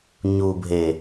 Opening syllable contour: low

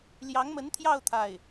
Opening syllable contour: rising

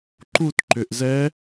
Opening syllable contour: falling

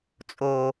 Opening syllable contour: low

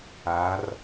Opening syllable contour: rising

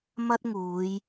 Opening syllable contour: high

